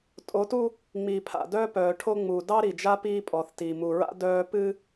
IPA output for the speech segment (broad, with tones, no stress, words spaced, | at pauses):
tʼo˨˦tu˦ | ŋ͡miː˨pʰa̰˨ dœː˦pœː˨ʈʰo˦ ŋ͡mu˨ dɑ˦ɾi˨d͡ʒa˦ piː˦pʼɔ˨θti˨ mu˨ɹa̰˦ dœː˦ pɨ˦